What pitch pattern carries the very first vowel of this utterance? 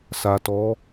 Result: low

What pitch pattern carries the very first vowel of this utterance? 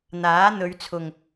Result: rising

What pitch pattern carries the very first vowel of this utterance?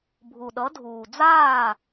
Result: low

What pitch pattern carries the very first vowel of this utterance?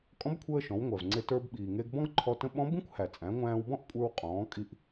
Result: rising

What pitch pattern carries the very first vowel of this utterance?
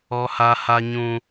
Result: high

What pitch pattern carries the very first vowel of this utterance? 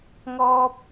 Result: high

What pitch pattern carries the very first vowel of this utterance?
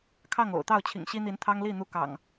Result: falling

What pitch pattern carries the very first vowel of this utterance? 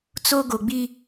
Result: high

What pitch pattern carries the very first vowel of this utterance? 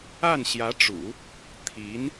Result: falling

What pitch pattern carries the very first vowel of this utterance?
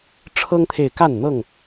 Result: high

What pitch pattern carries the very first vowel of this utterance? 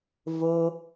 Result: low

